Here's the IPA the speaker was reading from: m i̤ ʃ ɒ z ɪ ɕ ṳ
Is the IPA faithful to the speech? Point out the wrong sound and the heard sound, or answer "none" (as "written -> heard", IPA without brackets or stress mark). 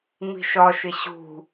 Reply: z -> ʃ